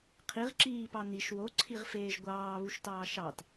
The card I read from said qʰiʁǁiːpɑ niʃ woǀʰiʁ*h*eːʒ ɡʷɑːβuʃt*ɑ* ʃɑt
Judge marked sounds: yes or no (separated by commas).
no, no